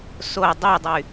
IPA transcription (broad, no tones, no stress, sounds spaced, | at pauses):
s o dˤ y dˤ y